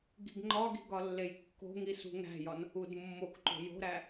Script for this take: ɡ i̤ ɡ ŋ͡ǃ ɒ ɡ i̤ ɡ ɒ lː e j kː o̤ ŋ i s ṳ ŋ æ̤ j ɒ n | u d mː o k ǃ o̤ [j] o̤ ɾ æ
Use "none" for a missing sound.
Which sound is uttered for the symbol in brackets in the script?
j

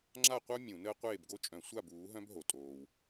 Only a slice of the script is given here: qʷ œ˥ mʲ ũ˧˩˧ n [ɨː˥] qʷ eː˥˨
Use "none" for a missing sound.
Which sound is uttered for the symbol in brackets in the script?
əː˥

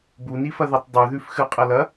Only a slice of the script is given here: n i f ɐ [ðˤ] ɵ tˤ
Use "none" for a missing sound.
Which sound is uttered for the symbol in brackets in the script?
ð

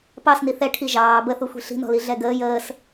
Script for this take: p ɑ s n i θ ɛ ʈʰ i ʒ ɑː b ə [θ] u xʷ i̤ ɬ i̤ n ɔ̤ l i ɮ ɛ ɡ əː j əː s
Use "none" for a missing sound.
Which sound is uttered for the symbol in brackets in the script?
θ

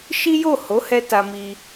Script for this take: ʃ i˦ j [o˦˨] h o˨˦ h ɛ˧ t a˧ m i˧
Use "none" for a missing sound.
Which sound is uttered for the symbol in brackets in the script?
o˦˨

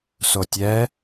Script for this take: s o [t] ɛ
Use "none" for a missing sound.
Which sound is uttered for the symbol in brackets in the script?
tʲ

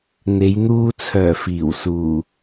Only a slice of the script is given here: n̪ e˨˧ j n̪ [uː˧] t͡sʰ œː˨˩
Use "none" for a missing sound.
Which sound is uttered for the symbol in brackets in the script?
uː˧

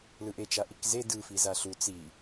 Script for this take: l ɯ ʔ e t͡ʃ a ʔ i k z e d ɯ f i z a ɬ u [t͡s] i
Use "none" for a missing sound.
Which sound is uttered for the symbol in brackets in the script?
t͡s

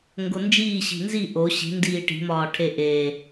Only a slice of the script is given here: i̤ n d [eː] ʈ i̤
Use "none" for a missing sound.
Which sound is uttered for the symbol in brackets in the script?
iː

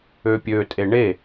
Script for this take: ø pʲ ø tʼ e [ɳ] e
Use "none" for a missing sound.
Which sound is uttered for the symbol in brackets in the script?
ɳ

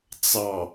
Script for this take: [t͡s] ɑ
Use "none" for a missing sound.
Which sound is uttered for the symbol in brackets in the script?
t͡s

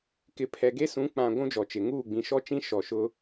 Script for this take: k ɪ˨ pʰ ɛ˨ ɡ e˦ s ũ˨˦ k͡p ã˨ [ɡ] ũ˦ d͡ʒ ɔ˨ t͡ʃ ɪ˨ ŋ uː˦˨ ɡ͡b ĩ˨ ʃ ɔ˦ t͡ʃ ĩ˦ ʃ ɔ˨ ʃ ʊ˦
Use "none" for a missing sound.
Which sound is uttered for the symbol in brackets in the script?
ɡʷ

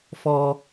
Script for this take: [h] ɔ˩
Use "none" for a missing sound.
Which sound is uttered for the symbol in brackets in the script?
f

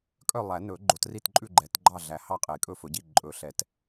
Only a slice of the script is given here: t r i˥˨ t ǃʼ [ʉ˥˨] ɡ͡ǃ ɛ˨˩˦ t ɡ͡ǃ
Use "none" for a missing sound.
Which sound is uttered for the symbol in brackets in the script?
ʉ˥˨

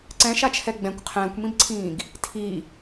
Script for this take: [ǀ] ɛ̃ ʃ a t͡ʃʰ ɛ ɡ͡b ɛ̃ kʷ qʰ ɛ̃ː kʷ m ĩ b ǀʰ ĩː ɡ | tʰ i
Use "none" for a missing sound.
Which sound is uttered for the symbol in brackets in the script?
ǀ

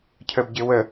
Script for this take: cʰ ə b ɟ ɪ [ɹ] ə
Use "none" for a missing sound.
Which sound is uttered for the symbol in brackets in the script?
w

